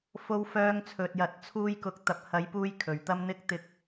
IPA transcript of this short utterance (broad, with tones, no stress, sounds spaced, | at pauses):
f o˧ w f œː˧ ŋ t͡sʰ ɵ˨ t̚ j ɐ˨˥ t̚ t͡sʰ uː˧ j k ʊ˨˥ k̚ t̪ ɐ˨ p̚ h ɐ˨˥ j p uː˧ j kʰ ɵ˨ ɥ t̪ ɐ˥ m n̪ ɪ˥ k̚ t̪ ɪ˨˥ k̚